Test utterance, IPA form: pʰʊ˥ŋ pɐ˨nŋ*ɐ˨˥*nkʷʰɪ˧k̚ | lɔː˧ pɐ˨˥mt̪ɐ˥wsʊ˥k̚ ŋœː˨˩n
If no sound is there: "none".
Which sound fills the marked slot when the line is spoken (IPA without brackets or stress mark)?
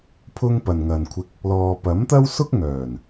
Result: ɐ˨